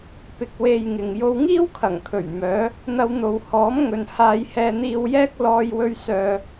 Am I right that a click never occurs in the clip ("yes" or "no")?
yes